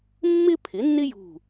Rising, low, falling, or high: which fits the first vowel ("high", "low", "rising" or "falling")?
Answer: high